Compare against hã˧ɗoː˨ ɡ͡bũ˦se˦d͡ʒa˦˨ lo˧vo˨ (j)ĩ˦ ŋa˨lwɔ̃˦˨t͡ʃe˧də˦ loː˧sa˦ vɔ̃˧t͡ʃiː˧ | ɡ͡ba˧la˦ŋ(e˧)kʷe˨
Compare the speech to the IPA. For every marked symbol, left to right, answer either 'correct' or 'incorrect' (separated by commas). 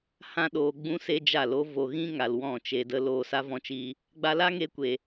incorrect, correct